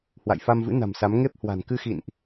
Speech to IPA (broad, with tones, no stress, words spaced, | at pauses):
hwa̰˧˨jfa˧mvɨ̰˧˥ na̤˨˩msa˨˦m ŋe˦˥p̚hwa̤˨˩n kɨ˧xḭ˧˨nʔ